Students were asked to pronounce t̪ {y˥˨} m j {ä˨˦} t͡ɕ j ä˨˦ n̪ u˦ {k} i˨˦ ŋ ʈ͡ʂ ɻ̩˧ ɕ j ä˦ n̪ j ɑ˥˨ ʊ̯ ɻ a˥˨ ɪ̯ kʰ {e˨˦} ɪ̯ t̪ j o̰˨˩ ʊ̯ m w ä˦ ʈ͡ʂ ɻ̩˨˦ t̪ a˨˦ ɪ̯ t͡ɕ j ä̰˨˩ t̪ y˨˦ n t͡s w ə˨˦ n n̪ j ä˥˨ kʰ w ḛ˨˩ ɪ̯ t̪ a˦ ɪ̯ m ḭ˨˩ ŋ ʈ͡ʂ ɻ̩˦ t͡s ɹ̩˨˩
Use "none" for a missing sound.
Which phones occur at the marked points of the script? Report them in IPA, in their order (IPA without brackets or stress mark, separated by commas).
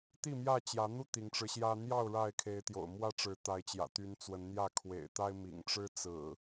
i˥˨, ä˥˨, t̪, e˨˦